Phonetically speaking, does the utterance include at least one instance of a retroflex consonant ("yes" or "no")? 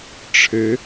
yes